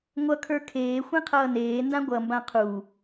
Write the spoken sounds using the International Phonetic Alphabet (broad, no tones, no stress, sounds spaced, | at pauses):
ŋʷ ʌ kʰ ə˞ kʰ eː xʷ ẽ qʰ ʌː n eː n d ã ɡʷ ʌ m b ã qʰ u